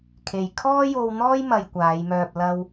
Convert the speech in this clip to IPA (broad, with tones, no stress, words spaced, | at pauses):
kʰe˨j kʰɔː˥jo˧wn̪ɔː˥j mɐ˧jkʷaː˨˧jmœː˧p̚ lɐ˧w